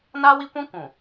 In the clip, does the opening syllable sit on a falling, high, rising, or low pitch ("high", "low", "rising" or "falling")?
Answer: high